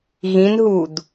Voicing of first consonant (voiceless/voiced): voiced